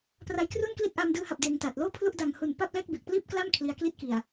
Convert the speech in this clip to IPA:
pra˦˥jkru˥˩nkli˥˩t̚ ʔaː˧mdɯː˧ha˨˩p̚ deː˧ŋta˨˩t̚ loː˥˩pʰlu˥˩ʔda˨˩ŋhu˨˩n pa˥˩p̚lɛː˥˩k̚be˨˩k̚ pliː˥˩p̚kla˥˩m kʰli˧a̯kli˥˩t̚ki˨˩a̯

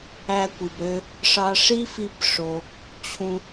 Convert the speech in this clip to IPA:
æ˧kʷi˩bɾø˧ | ʂɑ˧ʂi˥fi˧b ʂo˩ | t͡ɕʰũ˧

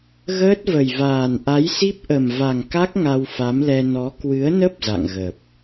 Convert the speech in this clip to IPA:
ɣəː˦˥t̚və˨˩jvaː˨˩n ʔa˨˦jsi˦˥p̚ʔə˨˩m va˨˩ŋka˦˥k̚ ŋa˧wfa˨˦mlɛ˧ nɔ˨˦ kwɨ˨˦ə̯nə˦˥p̚ za̰˧˨ŋɣə˨˩p̚

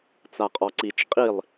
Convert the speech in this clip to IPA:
t͡saqʼɔǀit͡ʃ qʼilˠ

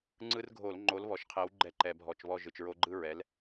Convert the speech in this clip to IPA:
ŋ͡ǀɯ˦rɡʱo˧˩˧l ŋ͡ǃo˨˦lβɔ˨˩ʃqʰɛ˨˦w ɡ͡ǃɛ˦ǃɛ˧˩˧bʱɔ˧˩˧t͡ʃ βɔ˦˨ʒɯ˨˩t͡ʃɹo˦ ɡ͡ǃɯ˦ ɹɛ˨˦l

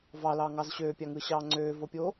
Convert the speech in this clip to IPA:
vɑlɑːŋɑz ɕøːpʲɑŋɯːɕɑː ŋ͡ǀøːvopʲoː

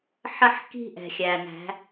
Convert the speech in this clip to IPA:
ħə˦ħki̤˦ ʔɛ̤˨xʲæ˨næ̤˨˦

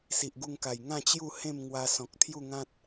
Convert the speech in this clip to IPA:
si˨ʔɡu˧ŋka˨˩j ŋã˥˧t͡ɕju˥˧ hẽ˥˧mŋwa˧ sɔ̃˨k̚ t̪ʰju˥˧ŋã˦t̚

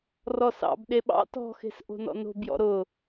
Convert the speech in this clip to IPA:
rɔsɑ̰b ɗeɓɑ̰ tɔ̤xe̤sʔo̤ nɔ̰no̤bjɔ̰ ɾʊ

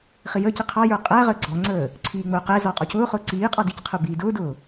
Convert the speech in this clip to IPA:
χijəːci qʰɑjə˞ qʼæʁəː ɡ͡ǀɔŋ͡ǀəː | ǀʰiːŋ͡mʊːqɛzɔ qʼɔcʊːχʊː ǀiː qʼɑdicqʰə˞ biːdʊːdʊː

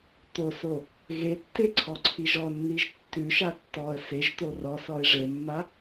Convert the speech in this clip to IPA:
t̪oso | ɣetːe ǀʰɔǀʰiʒɔnːiʒ tːʉʃa tːɔə̯ seʒt̪o rɔsɔɪ̯ ʐemːa

